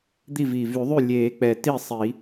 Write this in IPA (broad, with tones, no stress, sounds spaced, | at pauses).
d̪ i˥˩ v iː˨˩ v y˨˩˦ ðˤ y˥˩ lʲ eː˨˩˦ k͡p ɛ˨˩ t i˥˩ sˤ i˨˩˦